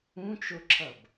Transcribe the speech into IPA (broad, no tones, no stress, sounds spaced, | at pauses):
ũ t͡ʃ o ǁʰ ʌ b